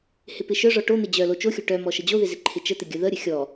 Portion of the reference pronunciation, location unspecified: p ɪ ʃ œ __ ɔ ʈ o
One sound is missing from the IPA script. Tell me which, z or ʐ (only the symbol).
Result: ʐ